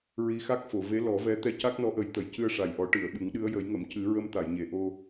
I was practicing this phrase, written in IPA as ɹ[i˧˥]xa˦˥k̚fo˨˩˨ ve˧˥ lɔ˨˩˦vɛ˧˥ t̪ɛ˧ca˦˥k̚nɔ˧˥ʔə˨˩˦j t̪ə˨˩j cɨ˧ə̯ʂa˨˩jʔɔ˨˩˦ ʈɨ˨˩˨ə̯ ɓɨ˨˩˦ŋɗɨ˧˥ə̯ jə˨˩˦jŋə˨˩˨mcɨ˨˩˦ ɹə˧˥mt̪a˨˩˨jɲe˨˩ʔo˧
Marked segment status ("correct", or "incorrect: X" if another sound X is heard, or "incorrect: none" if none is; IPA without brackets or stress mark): correct